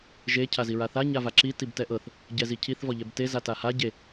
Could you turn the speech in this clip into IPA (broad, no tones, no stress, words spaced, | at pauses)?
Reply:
ʒe cʰaziɹaθa ɲavaǁi tibtɛʔɤθ | ɟɛzicʰiθ vɔʎɛbte zataha ɟe